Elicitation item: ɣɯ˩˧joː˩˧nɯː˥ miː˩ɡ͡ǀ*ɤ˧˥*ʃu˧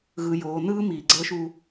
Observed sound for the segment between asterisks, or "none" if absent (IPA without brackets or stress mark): ɤ˧˥